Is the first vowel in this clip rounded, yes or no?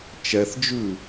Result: no